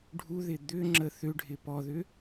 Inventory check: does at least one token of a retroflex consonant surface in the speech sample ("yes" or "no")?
yes